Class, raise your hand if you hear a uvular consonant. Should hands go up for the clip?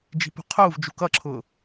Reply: yes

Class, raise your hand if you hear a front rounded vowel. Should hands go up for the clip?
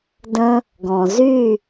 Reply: yes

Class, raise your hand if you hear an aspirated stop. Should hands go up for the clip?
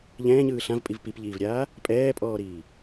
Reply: no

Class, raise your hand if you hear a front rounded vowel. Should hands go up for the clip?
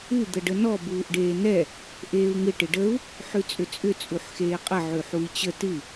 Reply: yes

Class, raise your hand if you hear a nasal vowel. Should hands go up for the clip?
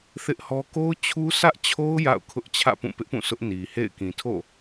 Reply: yes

